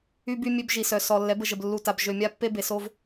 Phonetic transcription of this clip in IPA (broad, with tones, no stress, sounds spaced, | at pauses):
y˦ b y˦ mʲ ø˦ b ʒ i˨ s œ˨ s ɔ˨ lː ɛ˨˦ b ə˨ ʒ ə˨ b lː u˨ t a˨ b ʒ ø˨ mʲ a˦˨ pː e˦ b e˨ s o˦ v